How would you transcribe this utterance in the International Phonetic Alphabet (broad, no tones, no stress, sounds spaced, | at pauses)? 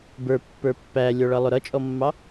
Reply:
b ə˞ pː ə˞ pː æ lʲ ɔ ɭ ʌ lˠ ʊ ɾ ʌ t͡ʃʼ ɔ mː ɑ